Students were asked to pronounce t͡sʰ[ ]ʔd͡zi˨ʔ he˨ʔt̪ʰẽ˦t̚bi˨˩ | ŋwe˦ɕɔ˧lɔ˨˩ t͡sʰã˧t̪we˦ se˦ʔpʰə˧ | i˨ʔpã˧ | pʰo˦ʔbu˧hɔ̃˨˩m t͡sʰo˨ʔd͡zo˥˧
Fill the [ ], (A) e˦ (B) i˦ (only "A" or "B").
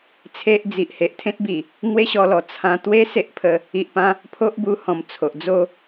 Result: A